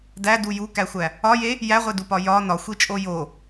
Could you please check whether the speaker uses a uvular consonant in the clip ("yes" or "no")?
yes